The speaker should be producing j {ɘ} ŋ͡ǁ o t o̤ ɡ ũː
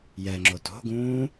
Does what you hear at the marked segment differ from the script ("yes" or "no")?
yes